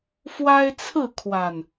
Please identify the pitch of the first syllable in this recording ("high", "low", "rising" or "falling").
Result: high